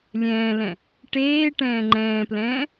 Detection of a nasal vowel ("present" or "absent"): present